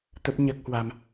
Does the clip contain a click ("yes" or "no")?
no